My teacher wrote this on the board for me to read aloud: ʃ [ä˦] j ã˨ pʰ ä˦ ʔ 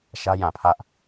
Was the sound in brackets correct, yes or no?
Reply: yes